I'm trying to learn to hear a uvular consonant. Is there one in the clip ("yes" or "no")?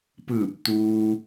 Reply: no